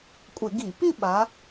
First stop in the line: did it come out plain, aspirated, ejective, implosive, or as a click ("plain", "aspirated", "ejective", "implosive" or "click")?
ejective